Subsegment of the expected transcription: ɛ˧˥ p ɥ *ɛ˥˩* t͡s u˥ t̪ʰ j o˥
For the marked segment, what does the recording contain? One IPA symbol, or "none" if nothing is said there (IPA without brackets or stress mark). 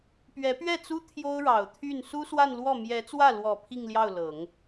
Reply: ɛ˥˩